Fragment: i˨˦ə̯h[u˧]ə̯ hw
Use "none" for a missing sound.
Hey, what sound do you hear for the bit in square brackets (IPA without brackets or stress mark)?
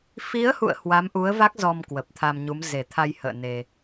ṵ˧˨